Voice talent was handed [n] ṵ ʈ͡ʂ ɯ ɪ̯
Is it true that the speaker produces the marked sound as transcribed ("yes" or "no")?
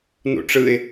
yes